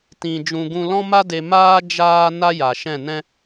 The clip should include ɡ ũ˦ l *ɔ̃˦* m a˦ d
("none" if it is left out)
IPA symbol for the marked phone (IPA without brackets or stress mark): ɔ̃˦